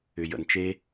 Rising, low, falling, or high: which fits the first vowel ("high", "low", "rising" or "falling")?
low